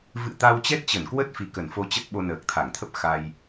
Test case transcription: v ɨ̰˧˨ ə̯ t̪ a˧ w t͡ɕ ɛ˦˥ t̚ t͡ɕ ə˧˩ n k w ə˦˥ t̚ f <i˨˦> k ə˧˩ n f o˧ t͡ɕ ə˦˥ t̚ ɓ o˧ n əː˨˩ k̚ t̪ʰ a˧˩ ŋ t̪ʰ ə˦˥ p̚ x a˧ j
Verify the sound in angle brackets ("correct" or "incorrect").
incorrect